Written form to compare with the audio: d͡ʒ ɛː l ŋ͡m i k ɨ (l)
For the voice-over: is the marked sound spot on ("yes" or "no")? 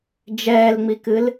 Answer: yes